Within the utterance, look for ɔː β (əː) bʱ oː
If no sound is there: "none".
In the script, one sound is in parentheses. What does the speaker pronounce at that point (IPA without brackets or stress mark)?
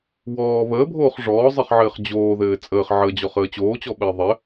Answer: əː